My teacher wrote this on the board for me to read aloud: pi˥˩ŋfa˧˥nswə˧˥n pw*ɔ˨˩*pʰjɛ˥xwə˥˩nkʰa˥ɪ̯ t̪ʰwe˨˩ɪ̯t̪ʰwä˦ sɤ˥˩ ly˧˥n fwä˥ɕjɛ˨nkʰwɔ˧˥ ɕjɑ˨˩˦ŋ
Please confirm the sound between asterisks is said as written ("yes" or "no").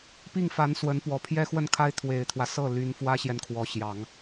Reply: yes